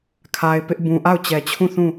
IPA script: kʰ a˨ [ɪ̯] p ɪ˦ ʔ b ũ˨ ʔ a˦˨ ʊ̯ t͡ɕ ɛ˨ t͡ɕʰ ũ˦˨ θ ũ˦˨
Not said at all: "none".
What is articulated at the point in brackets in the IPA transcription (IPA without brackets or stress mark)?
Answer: ɪ̯